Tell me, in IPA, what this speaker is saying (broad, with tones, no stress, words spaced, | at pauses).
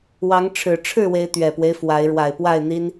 wɑ˨˦ŋ ʈ͡ʂʰɻ̩˨˩ ʈ͡ʂʰɻ̩˥˨we˨˦ɪ̯ t̪ɥɛ˨˩pwe˦ɪ̯ fwa˨˦ɪ̯ ɻwa˨˩ɪ̯pwa˥˨ɪ̯n̪i˦n